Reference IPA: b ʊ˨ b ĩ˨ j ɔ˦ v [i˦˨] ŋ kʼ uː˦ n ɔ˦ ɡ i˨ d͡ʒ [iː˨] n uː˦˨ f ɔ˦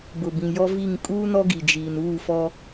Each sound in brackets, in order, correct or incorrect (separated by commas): correct, correct